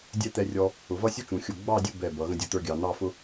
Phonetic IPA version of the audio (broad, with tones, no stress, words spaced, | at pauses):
dʲɛ˥˧t̪ɛ˧rʲɔ˧ | ʊ˩˧vʌ˥sʲu˥t͡ʃũ˩˧ xʲʊ˧˩ ɡ͡bɑ˥˧dʲʊ˥˧ bɛ˧˩bʌ˩˧ ɣə̃˥dʲu˧t̪ə˞˥ɡʲɑ˩˧ n̪ɑ˥˧fʊ˥